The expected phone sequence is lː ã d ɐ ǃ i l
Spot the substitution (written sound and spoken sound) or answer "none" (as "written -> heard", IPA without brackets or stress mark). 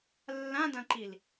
ɐ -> ɐ̃